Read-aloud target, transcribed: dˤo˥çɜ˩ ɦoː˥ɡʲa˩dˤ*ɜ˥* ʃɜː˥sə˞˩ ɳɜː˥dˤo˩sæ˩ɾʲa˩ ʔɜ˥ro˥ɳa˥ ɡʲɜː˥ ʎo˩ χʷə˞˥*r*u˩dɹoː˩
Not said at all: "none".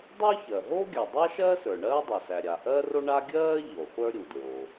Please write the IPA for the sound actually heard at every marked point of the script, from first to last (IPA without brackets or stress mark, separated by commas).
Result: æ˥, ɾʲ